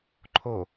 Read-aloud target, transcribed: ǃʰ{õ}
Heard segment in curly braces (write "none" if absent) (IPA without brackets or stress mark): o